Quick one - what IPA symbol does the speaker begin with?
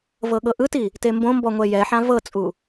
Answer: v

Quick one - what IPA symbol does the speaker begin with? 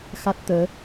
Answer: x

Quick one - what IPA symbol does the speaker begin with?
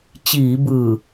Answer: t͡ɕ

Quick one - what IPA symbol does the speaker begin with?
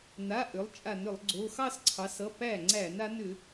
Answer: n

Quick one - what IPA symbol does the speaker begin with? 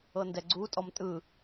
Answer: ɤ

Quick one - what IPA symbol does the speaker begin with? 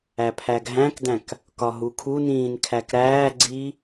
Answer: æ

